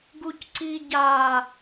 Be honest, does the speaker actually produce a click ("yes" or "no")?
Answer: yes